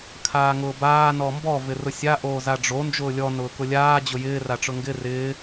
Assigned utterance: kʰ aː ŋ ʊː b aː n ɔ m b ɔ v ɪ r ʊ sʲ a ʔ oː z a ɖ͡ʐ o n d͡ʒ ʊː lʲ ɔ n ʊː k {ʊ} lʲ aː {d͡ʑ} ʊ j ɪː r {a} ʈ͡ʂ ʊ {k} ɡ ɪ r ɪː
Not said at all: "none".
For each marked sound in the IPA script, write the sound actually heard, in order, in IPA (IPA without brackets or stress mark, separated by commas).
ʊ, d͡ʑ, a, ŋ